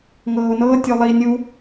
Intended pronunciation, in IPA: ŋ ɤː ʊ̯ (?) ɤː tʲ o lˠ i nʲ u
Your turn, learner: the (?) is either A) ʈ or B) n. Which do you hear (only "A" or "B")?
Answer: B